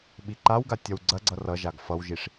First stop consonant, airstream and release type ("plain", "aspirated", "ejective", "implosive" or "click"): implosive